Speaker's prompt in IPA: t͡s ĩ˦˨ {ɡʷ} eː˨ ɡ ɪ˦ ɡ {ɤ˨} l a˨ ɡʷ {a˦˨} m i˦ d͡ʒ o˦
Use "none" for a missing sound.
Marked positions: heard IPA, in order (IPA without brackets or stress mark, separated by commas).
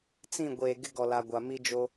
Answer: ɡʷ, ɔ˨, a˨